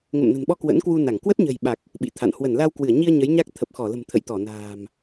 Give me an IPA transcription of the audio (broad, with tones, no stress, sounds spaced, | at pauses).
ŋ ə̰˧˨ m n ə̤˨˩ n ɓ ɔ˧ k w ə̰˧˥ n k w u˧ n a˧˩ ŋ k w ə˦˥ t̚ ɲ ə̤˨˩ j ɓ a˨˩ k̚ | ɓ ḭ˧˨ t̪ʰ a̰˧˨ n h w ə˧˩ n l a˧ w k w ɨ˧˩ ə̯ ɲ i˧ ə̯ ɲ ə˨˦ j ɲ a˦˥ k̚ t̪ʰ ə˨˩ p̚ x ɔ˧˩ l ə̤˨˩ m t̪ʰ ə̰˧˨ j t̪ ɔ˧˩ n a̤ː˨˩ m